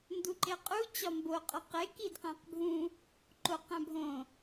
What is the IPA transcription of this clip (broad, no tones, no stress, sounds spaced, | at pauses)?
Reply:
n d u ǃ e qʼ u t͡ɕ ɒ m b o qʼ ɒ q e k i d q æ̃ q bʱ ũ | ǃ o q æ̃ bʱ õ